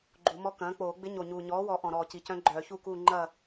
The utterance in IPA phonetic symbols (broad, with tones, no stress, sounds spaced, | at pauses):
ɡ͡ǃ u˨˩˦ m ɔ˧˥ k ɐ̃ː˩˥ k͡p oː˨˩˦ ɡ͡b ɪ˧˥ ɲ o˨˩ ɲ uː˨˩ ɲ ɔː˩˥ w ɔ˨˩ ʔ ɔ̃˨˩ ɾ ɔː˨˩ c i˨˩ c œ̃˧˥ ɡ͡ǃ œː˨˩˦ ç u˥˨ k uː˥˨ ŋ͡ǃ ɐ˥˨